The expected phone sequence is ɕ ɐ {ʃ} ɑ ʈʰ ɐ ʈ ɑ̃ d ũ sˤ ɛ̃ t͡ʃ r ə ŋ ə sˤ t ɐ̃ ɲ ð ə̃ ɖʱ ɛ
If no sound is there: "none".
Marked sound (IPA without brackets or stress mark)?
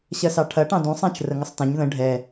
s